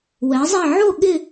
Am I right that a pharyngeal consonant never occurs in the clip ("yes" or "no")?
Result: no